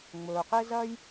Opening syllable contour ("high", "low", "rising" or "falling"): low